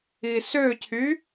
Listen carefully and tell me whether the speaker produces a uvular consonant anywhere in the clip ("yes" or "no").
no